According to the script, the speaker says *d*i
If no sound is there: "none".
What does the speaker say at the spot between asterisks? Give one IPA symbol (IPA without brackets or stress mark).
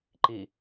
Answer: ǃ